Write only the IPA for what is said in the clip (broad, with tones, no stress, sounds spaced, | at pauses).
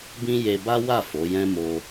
b ĩ˦ j e˧ b a˦ w a˦˨ f o˨˦ j ɛ̃˦ m o˧